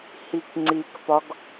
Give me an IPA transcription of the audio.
h i k ŋ͡ǀ i k p ɒ ɡ

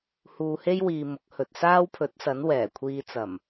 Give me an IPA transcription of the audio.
h uː˧ h e˥ j w iː˧ m ʊ˨˥ k̚ h ɵ˨ t̚ s aː˥ w pʰ ɵ˨˥ t̚ s ɐ˨˥ n w ɛː˨˩ kʷʰ iː˧ t͡s ɐ˨˩ m

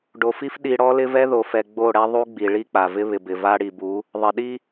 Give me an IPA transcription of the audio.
ɖ o˨ f i˦ f ɗ i˨ ɽ ɔ˦ l ɪ˦ v ɛ˦ ð o˨ f ɛ˨ ɡ͡b o˦˨ ɽ ɛ˦ ðˤ u˦ ɡ͡b i˨ ɭ i˦ k͡p a˨ v ɪ˦ β ɪ˨ b ɪ˨ v a˦ ɽ i˨ b u˨˦ | ðˤ ɪ˨ ɗ i˦

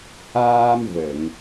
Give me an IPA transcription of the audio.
h aː˧ m v ə˨˩˨ ŋ

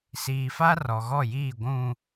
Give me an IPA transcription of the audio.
s iː˨ f a˦ r ɔ˨ ɣ ɔ˦˨ j iː˦˨ ɡʷ ũ˨

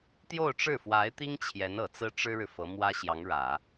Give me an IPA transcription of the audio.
t̪ j o˥˧ ʊ̯ ʈ͡ʂ ɻ̩˥˩ f w a˧˥ ɪ̯ t̪ i˥ ŋ t͡ɕʰ j ɛ˧˥ n ɤ˨˩ t͡s ɹ̩˥ ʈ͡ʂ ɻ̩˥ ɻ ɻ̩˨ f ɤ˧˥ m w ä˥ ɕ j ɑ˧˥ ŋ ɻ ä˨˩˦

